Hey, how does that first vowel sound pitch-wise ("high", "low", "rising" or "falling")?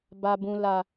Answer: low